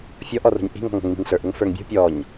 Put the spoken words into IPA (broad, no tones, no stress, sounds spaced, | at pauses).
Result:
fʲ ɔ ʔ ɔ r o̤ ɲ ʔ i̤ ŋ ɔ̤ ŋ o̤ ŋ m i̤ ŋ ɬ ə˞ ʔ ʊ ŋ f ə˞ ŋ bʲ o̤ pʲ ɔ ɲ